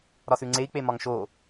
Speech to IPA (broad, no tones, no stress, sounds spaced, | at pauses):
ɾ ɒ s ʉ ŋ͡ǀ e i̯ k͡p e m ɒ ŋ ʃ o